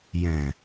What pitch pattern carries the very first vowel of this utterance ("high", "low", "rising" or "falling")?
low